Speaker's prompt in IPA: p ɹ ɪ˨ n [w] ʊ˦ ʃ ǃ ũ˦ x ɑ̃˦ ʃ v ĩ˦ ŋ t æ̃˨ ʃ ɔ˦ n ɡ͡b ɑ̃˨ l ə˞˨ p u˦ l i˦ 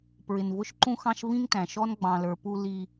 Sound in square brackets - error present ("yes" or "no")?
yes